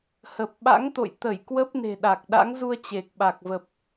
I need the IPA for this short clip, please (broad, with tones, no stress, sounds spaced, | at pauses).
h ə˨˩ p̚ ɓ a̰˧˥ ŋ t̪ o̰˧˨ j t̪ ə˧˩ j k w ə˦˥ p̚ n e̤˨˩ ɗ a˨˩ k̚ ɗ a̰˧˥ ŋ z u˧ ə̯ t͡ɕ e˨˩ k̚ ɓ a˨˩ k̚ v ə˨˩ p̚